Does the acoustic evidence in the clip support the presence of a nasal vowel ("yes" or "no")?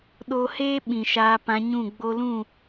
yes